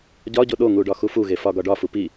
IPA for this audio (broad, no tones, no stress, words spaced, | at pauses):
ɟɒɟo ɗoŋuɖɒ xufuɣe fɒɡɒɖɒfu pi